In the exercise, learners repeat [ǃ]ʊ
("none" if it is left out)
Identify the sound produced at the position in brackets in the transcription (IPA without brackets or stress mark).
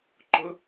ǃ